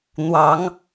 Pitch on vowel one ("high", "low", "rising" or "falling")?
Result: rising